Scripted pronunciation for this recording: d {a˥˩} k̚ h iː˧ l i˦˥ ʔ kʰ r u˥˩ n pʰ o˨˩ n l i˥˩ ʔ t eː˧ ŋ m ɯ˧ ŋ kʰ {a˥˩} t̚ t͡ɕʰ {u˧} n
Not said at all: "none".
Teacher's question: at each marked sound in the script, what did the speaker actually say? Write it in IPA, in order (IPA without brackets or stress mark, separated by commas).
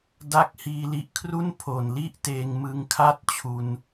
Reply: a˥˩, a˥˩, u˧